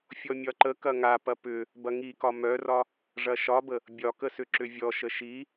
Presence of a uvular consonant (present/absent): absent